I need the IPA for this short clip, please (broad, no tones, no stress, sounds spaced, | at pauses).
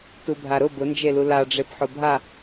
t u bʱ a ɾ ʊ b ʊ n d͡ʒ e l u l a ɖ͡ʐ e p ħ ʊ bʱ a